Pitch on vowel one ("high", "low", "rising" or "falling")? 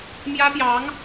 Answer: high